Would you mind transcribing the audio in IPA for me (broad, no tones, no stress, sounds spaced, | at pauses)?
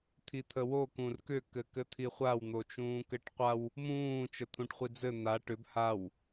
t̪ʰ i t̪ʰ ə w o k ũ r k ʏ k ɘ k ɘ t̪ʰ i χʷ a w n̪ o t͡ʃ ũː k ɘ ʈ qʷ a w | m ũː t͡ʃ ə t̪ʰ ũ ʈ χʷ i d͡z ɘ n̪ a ʈ ʏ b h a w